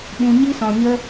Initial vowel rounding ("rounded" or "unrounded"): rounded